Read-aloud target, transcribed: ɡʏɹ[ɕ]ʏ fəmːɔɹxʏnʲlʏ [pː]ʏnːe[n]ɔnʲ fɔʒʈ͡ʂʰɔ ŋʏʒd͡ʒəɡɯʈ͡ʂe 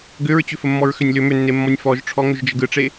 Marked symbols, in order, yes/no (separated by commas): no, no, no